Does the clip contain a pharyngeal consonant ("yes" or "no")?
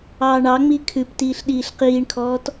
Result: no